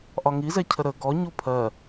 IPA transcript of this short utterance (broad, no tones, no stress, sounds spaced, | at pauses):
ʔ ɒ ŋ i z ɛ cʰ ə ɾ ə ɡ ɔ ɲ u pʰ ɜ